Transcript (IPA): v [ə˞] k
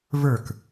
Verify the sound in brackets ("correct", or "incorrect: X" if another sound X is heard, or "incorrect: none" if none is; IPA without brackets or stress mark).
correct